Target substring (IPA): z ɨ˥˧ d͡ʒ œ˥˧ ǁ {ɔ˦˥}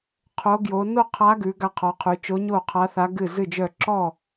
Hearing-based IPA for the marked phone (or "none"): ɔ˥˧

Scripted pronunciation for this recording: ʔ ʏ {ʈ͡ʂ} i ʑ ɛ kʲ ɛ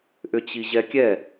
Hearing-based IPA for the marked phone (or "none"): t͡ɕ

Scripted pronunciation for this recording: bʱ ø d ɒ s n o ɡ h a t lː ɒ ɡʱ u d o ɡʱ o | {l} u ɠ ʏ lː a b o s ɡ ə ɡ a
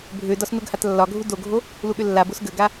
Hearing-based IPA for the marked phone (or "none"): l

